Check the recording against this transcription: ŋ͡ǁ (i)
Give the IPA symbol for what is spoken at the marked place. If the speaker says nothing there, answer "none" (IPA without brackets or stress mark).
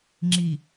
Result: i